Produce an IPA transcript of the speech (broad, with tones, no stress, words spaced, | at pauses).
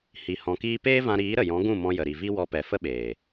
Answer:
hi˨ hɔ̃˨kiː˧peː˦vã˧ ɾiː˨˦ɾə˨jɔ̃˨˦ ɡũ˦˨mɔ̃˧jə˨ ɾi˨vi˦wɔ˧pɛ˨ fə˦ɓeː˨